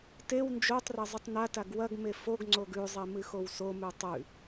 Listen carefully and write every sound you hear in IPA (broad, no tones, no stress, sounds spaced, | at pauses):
t e w n d͡ʒ o tˤ r ɐ zˤ ɨ tˤ n a t a ɡ w ɐ ɡ m e f o ɡ ŋ͡ǀ o ɡ ʉ zˤ e m ɨ x o w s o m ʉ tˤ ʉ